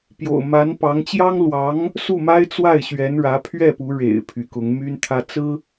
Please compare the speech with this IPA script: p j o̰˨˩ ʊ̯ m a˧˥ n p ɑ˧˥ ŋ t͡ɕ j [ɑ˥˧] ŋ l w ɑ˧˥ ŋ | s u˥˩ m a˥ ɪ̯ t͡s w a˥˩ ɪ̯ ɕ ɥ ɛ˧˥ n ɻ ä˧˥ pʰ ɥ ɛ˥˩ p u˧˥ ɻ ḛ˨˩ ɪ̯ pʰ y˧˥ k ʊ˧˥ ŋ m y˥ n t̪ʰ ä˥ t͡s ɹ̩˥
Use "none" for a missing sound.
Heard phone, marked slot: ɑ˥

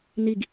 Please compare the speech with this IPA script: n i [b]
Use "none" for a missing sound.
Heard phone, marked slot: ɡ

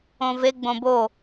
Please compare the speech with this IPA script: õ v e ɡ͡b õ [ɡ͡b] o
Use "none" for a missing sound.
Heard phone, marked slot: b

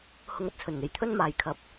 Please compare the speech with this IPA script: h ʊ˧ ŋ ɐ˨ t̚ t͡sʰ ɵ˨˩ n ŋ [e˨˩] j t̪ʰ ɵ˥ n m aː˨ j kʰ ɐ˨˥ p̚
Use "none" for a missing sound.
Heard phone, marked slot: e˨˩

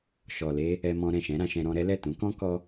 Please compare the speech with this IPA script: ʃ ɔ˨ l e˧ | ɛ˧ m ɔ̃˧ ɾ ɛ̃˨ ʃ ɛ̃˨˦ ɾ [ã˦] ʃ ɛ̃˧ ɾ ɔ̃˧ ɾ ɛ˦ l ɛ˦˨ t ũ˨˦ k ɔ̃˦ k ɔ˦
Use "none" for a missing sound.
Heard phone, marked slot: ã˧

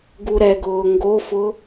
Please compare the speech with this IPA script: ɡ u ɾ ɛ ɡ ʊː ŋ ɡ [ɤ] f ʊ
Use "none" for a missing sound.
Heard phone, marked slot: o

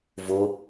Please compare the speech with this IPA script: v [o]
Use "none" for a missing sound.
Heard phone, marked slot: o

